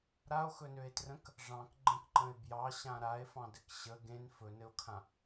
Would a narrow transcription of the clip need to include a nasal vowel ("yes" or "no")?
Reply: yes